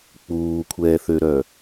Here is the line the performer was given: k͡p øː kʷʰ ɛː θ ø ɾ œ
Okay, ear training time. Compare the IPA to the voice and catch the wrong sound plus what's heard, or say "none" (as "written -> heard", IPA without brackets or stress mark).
øː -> uː